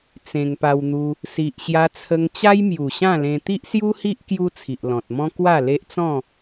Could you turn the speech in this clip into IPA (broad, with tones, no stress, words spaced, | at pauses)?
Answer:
t͡sẽ˧ŋpa˧wn̪u˧ | si˨ʔɕja˧t͡sʰə˧ŋ t͡ɕa˦jmju˨˩ɕã˥˧lẽ˧ t̪i˦ʔsju˦hi˦ʔ kju˦t͡sʰi˨ʔlɔ̃˨t̚mɔ̃˦ kwa˥˧le˦ʔt͡sɔ̃˥˧